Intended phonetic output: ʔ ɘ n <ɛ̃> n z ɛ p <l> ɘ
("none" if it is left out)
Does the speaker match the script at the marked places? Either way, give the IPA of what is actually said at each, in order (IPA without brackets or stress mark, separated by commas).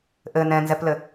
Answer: ɛ̃, l